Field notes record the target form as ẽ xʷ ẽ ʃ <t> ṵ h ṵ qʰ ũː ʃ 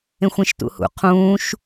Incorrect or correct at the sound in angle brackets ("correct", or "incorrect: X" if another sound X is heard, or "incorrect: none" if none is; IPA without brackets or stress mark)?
correct